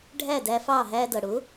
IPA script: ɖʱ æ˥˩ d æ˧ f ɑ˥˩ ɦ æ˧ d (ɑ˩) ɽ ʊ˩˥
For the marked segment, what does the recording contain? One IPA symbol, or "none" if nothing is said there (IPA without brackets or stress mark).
ʌ˩